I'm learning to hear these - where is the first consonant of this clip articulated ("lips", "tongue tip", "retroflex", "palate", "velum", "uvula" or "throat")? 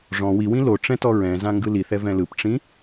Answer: retroflex